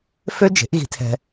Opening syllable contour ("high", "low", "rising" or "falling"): high